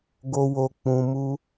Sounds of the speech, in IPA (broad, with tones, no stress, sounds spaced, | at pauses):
ɡ o˧ w o˧ k͡p ũ˧ m u˦